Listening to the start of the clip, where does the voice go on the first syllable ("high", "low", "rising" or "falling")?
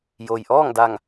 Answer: low